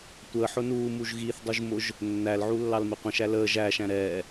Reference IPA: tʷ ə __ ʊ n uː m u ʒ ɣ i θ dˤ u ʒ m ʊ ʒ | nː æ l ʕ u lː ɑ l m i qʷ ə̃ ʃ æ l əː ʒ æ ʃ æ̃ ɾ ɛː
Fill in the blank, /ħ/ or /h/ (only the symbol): ħ